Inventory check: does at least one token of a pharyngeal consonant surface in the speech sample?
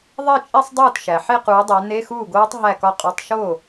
yes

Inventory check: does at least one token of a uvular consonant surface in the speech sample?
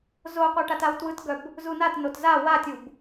yes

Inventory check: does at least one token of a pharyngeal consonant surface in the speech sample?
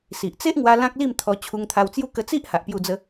no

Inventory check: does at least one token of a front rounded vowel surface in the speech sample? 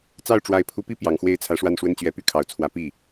yes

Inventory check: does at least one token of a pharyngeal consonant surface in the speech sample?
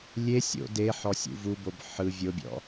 yes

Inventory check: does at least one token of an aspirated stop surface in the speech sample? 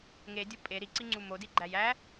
no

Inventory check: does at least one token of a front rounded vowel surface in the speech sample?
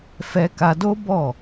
no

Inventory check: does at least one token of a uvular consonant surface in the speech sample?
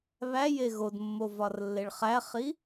yes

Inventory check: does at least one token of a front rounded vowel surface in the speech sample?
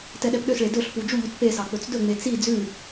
yes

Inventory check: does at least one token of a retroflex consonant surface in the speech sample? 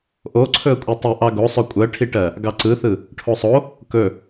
yes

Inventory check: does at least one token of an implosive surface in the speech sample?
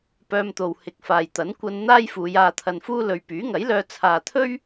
no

